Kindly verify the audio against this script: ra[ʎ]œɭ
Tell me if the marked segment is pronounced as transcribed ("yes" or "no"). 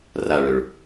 no